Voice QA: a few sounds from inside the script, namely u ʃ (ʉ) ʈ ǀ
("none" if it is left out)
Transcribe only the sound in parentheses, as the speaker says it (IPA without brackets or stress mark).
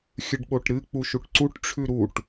u